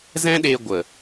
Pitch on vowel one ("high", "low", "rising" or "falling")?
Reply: high